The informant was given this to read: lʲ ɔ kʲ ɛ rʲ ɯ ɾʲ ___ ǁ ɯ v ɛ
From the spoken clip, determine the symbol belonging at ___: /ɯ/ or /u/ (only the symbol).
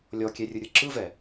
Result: ɯ